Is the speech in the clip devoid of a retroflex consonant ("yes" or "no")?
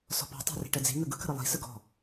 no